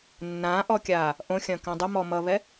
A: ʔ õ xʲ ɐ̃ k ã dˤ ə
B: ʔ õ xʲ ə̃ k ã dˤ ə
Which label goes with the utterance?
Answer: A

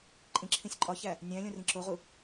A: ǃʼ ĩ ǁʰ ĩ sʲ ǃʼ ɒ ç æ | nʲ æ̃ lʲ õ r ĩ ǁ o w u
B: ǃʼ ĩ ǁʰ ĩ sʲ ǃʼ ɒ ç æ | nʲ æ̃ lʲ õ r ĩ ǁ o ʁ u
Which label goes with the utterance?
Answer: B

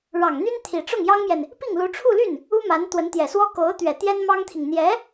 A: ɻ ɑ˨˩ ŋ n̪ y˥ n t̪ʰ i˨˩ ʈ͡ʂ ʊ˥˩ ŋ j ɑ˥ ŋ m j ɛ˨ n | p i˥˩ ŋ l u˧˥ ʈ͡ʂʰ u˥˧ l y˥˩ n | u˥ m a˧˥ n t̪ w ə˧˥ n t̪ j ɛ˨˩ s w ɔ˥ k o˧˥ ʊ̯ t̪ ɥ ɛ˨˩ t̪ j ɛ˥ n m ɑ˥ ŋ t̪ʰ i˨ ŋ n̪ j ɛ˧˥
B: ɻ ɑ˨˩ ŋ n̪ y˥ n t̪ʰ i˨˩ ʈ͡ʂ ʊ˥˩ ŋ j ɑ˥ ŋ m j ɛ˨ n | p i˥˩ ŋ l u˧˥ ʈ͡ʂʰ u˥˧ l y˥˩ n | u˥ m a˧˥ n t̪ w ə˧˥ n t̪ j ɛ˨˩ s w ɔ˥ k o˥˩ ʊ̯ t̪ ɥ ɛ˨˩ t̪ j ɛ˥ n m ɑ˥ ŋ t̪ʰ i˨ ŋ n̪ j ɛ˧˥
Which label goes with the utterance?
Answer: A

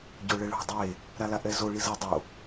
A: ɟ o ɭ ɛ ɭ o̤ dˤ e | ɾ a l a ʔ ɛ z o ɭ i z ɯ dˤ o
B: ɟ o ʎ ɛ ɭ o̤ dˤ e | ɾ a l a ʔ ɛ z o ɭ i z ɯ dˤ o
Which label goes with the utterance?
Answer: A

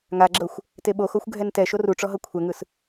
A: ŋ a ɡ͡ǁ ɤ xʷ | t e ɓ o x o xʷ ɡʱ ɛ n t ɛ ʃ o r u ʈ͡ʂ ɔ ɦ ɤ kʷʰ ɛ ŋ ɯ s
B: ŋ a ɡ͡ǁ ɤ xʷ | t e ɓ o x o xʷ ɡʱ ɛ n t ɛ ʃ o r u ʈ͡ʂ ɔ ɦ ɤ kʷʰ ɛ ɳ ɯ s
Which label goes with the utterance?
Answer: A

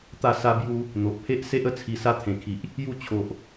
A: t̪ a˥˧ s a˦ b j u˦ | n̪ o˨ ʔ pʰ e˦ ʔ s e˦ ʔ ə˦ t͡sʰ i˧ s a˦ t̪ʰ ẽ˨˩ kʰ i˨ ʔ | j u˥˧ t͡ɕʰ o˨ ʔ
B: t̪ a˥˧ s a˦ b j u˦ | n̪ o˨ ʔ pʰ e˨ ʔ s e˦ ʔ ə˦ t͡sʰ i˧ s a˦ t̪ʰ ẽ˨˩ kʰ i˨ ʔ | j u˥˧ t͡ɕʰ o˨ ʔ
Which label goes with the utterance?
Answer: A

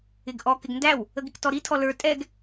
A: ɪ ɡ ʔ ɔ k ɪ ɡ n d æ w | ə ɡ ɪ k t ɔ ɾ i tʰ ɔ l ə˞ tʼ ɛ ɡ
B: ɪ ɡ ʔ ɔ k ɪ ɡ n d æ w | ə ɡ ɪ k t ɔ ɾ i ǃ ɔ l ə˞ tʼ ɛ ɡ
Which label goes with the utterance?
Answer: A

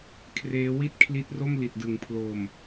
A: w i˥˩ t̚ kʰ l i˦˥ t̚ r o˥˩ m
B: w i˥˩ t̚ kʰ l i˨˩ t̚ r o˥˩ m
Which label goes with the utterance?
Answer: A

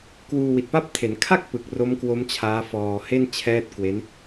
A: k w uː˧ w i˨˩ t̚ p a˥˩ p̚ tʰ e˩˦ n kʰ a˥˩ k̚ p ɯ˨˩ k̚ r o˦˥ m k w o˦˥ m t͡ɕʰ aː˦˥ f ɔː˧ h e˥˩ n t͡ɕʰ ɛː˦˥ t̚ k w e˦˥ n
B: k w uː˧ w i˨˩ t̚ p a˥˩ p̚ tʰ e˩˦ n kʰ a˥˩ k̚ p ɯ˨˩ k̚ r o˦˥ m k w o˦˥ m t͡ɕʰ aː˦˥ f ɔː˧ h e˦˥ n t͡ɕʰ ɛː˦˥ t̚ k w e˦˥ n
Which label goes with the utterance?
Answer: A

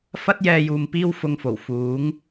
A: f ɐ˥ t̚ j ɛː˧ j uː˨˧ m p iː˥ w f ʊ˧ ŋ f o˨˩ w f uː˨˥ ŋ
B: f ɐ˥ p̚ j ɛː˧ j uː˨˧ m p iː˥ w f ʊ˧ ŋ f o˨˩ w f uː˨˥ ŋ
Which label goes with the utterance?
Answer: A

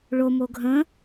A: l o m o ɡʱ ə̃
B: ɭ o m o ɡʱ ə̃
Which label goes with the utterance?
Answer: B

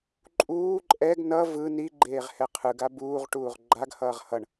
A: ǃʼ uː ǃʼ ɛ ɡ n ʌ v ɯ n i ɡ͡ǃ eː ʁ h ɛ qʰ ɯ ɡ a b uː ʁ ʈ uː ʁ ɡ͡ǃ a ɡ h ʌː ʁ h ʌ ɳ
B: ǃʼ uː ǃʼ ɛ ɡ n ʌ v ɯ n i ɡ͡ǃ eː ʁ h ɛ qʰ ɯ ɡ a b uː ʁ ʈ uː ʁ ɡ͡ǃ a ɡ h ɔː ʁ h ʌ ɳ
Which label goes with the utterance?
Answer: A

